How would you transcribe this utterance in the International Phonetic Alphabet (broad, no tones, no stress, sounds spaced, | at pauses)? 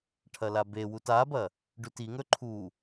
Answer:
ʈʰ ɐ l a b e w u t a b ɐ | ɖ ʉ t i ŋ ɵ ǃʰ u